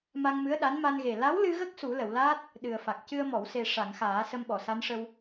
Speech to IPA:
m a˧ ŋ m ɨ˧˥ ə̯ ɗ a˧˥ n m a˧ n ɣ e˨˩ l a˧˥ w l ɨ˧ ɣ ə˦˥ k̚ s u˨˩˦ l ə˨˩˨ w l aː˦˥ t̚ | ɗ ɨ˨˩ ə̯ f a˨˩ k̚ c ɨ˧ ə̯ m ɔ˨˩˨ w s e˨˩ ʂ a˨˩˨ ŋ x aː˨˩˦ s ə˧ m ɓ ɔ˨˩˨ s a˧˥ n ʂ ə˧ w

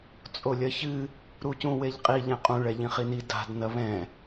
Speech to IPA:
t͡sʼ o lʲ ɐ ç ɨ | ɾ u c ũ w e ʎ qʼ i ʎ ɛ̃ qʼ ũ ɭ ɛ ʎ ĩ χ i n i d a̤ d n ɐ β ɛ̃

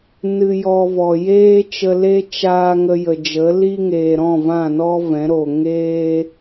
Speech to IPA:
n ɨ˧ j ɔ˧ v ɔ˨ j eː˦ t͡ʃ ə˧ l e˦ t͡ʃ aː˧ ŋ ə˧ j ə˨ d͡ʒ ə˨˦ l i˦ ŋ eː˨ ɾ ɔ̃˦˨ v ã˦˨ n ɔ˦ v ɛ̃˨˦ ɾ o˨ ŋ eː˦

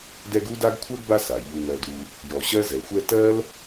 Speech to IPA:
d ɛ˦ ɡ u˥ d a˥ ɡ kʷʰ ɜ˥ ɡ b a˦ s a˩ ʎ u˨ ŋ ɜ˨ d u˨ | j ɔ˨ ɕ ɜ˥ z ɛ˩ xʷ ɛ˦ t ɜ˥ l

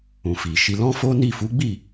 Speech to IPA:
ũ˨ f i˨ ʃ i˧ l ɔ̃˦ f o˦ n i˦˨ f u˨˦ ɡ͡b i˦˨

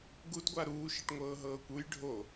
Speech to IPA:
ɡ u d ɡʷ a ɾ uː ʃ i ʈ ŋʷ ɤː ɦ ɤː kʷ u j ɖʱ o

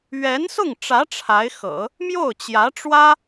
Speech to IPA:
ɥ ɛ˧˥ n s ʊ˥˩ ŋ ʈ͡ʂ ä˧˥ ʈ͡ʂʰ a˧˥ ɪ̯ x ɤ̰˨˩˦ | m j o˥˩ ʊ̯ t͡ɕ j ä˧˥ ʈ͡ʂ w ä˥

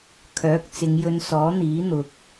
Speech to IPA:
kʰ œː˨˥ k̚ t͡s ɪ˨˧ ŋ j ɵ˧ n s ɔː˨˥ n̪ iː˨˥ n̪ ʊ˨ k̚

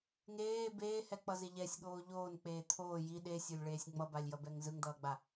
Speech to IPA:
ŋ eː b eː h ɛ k͡p ʌ z e ʎ ɛ sʲ ɠ oː ʎ oː n k͡p eː t̪ʰ oː j i ɗ e sʲ o lʲ ɭ eː sʲ ŋ͡m ʌ b a lʲ j ʌ b ɛ ŋ z ɯ ŋ d̪ ʌː ɡ͡b a

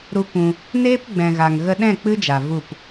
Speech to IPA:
ɾ u˦ kʷ ũ˧ | n eː˦ p ɡ͡b ɛ̃˨ ɣ a˨ ŋ ɣ ə˧ ɗ ɛ̃˦˨ k͡p ɨ˦ d͡ʒ a˨ v u˦˨ p

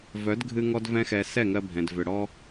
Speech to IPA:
v œ˨˦ d ɡʱ ɨ˧ ŋ ɔ˦ d v ɛ̃˦ x ɛ˧ s ɛ˦˨ ŋ ɜ˧ bʱ ɛ̃˨ d v ʏ˨ ɽ ɔ˧

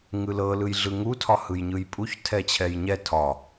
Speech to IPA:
ŋ ɯ l ɤ l ɯ j ɮ ɯ ŋ u tʰ ɒ h ɯ j ɲ ɯ j pʼ u ç tʰ ɛ t͡ɕʰ ɛ j ɲ ɛ tʰ ɒ

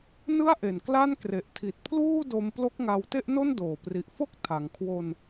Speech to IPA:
n ɯ˥˩ a̯ ʔ e˨˩ n k l a˥˩ n k r e˨˩ ʔ tʰ i˨˩ t̚ pʰ l uː˥˩ d o˧ m p l o˦˥ k̚ ŋ a˧ w t e˥˩ ʔ n o˥˩ n d oː˨˩ p r i˨˩ ʔ f o˥˩ k̚ tʰ a˩˦ ŋ kʰ w o˧ n

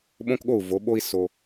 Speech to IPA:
ɓ õ˦ k ɠ o˦˨ u̯ v o˨˦ ɓ o˦ i̯ s o˦

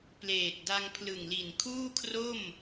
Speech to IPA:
p l eː˨˩ t̚ d a˧ ŋ pʰ l ɯ˨˩ ŋ l i˨˩ n kʰ uː˥˩ kʰ r o˥˩ m

